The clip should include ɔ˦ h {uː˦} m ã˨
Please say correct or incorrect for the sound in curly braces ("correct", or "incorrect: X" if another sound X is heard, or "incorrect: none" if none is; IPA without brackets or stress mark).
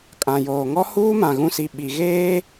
correct